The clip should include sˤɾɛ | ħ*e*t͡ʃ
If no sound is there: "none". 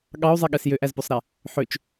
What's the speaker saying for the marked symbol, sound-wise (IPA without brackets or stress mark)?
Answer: ø